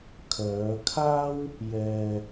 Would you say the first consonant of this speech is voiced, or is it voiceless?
voiceless